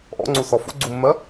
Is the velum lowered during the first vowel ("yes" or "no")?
no